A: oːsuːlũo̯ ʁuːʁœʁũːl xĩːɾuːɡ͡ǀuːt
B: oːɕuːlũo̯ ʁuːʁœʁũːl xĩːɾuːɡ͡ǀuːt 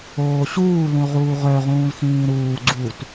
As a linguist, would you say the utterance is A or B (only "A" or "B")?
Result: B